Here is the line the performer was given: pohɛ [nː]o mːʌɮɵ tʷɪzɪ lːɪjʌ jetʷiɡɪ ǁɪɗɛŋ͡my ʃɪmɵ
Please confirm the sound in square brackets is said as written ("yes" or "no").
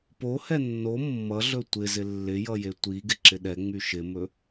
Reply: yes